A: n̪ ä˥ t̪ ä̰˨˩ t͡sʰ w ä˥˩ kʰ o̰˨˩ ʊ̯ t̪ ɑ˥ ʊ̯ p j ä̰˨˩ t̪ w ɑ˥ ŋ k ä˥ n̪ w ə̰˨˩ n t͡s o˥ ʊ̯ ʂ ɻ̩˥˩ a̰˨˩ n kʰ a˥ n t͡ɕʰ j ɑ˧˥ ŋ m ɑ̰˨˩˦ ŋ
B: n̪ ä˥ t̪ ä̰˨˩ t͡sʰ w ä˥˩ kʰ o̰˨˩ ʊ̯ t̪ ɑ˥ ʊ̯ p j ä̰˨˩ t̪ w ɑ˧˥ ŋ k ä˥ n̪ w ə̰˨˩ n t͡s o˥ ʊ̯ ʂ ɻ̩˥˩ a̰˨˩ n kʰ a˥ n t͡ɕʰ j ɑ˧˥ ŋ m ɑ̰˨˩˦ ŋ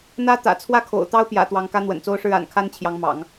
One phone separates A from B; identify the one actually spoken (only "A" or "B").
B